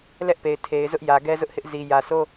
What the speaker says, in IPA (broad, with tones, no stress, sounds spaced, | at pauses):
l ɛ˦ ʔ p e˨ ɪ̯ tʰ e˨ ɪ̯ z ʊ˦ ʔ j ä˨ ɡ ɛ˦ z ʊ˦ ʔ h ɪ˦ ʔ z i˨ j ä˨ s o˦